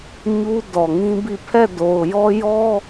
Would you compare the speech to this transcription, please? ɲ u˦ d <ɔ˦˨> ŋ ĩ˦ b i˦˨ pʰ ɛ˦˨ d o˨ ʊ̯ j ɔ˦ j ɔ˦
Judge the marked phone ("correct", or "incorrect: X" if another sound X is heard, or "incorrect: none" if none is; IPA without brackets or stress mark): incorrect: ɔ˨